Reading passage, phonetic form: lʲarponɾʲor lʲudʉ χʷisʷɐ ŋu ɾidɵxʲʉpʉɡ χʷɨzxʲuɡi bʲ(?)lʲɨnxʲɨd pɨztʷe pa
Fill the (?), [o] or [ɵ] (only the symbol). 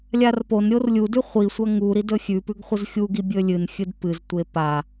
ɵ